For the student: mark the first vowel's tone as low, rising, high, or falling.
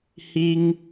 high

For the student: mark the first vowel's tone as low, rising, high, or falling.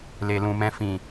low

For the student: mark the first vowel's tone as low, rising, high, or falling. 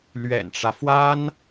low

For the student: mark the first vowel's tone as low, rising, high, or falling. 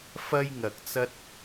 high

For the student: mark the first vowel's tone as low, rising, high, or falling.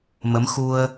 rising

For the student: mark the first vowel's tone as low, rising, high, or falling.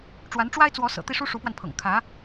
rising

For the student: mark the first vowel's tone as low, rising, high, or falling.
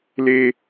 high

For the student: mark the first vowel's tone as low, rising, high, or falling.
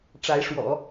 rising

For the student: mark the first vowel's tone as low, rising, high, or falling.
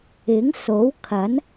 rising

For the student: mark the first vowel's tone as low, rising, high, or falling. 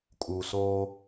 low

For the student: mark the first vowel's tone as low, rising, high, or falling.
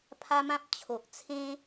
high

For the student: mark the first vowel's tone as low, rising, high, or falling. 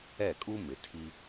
falling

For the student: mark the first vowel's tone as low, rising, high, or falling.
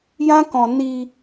high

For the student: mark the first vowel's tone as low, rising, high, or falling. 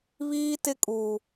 high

